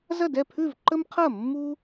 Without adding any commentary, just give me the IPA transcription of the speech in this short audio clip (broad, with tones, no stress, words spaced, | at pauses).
zɐ˥˩dɛ˥˩pʰʉ˥˩v ǃə˦mqʰɐ˥˩mːu˦